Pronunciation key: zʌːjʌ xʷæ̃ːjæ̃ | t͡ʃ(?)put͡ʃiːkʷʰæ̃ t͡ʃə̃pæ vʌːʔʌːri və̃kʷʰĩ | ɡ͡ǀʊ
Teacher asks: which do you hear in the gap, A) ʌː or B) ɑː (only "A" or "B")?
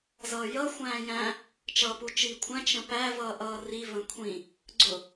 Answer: A